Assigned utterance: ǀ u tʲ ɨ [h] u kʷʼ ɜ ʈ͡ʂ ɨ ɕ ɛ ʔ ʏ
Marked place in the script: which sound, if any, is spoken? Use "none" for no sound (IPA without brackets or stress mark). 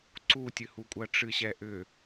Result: h